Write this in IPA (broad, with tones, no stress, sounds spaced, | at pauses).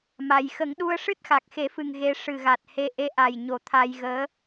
m a˨˩ j x ə˨˩˦ ŋ ɗ u˧ ə̯ ʂ ɨ˦˥ t̚ x a˨˩ k̚ x e˨˩˦ f ɨ˨˩ ŋ ɣ e˧ ʂ ɨ˨˩ ɣ a˨˩ t̚ h e˧ ʔ e˧˥ ʔ a˨˩ j ɲ o˨˩˦ t̪ʰ a˧ j ɣ əː˧˥